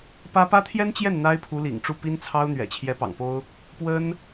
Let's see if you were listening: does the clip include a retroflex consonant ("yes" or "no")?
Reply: yes